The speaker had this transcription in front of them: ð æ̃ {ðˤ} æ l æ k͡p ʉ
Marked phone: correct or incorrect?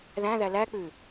incorrect